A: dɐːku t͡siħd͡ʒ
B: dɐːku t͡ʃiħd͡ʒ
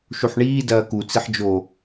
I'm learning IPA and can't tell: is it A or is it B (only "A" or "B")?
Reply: A